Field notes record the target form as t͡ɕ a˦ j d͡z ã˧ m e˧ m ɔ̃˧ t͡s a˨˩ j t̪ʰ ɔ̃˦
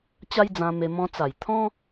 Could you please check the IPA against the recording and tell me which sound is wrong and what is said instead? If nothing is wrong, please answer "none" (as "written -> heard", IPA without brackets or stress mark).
none